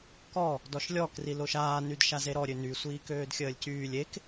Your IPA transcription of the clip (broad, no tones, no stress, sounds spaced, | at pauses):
k ɔ | d ɔ ʃ lʲ ɔ k r i l o ʃ aː n y d ʃ a z e ɾ ɔ ɾʲ ø n y sʷ iː k øː d xʲ əː lʲ c yː lʲ e k